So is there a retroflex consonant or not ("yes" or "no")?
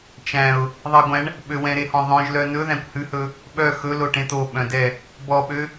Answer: yes